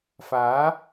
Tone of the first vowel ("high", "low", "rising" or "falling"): rising